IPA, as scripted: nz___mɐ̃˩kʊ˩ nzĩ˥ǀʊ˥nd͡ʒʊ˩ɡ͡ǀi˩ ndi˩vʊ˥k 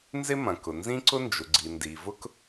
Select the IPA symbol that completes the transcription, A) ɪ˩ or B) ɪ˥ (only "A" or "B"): B